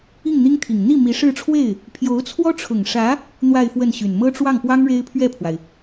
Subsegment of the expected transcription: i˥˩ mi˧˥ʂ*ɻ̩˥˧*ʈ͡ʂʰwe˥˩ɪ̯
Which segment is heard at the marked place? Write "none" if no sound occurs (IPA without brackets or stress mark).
ɻ̩˥˧